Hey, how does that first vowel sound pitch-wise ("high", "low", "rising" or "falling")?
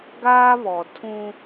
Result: high